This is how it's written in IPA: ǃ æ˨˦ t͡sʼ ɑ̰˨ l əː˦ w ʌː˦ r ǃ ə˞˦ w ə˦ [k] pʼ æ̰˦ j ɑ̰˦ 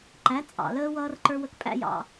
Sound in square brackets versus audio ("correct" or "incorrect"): correct